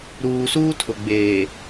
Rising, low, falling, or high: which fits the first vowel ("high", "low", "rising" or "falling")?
low